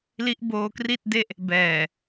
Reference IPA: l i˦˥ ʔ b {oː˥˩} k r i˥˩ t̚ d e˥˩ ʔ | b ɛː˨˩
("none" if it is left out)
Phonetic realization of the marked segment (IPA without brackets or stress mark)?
oː˧